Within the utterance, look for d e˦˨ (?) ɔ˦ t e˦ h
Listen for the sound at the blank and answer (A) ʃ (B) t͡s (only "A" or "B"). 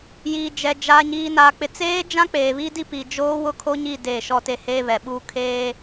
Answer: A